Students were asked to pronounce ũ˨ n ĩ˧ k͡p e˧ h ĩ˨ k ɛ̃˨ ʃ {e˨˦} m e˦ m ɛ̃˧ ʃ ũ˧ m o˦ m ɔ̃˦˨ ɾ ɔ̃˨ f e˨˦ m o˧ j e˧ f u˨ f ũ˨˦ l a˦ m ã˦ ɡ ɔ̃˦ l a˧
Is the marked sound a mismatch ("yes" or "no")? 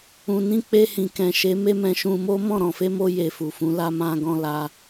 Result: no